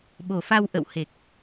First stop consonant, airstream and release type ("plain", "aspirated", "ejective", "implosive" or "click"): implosive